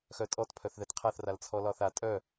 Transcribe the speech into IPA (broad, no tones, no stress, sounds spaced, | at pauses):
x œ tʼ ɔ t pʰ œ θ ð ɛ t qʰ a θ r a l t͡sʰ ɔ l ɒ θ a tʼ œ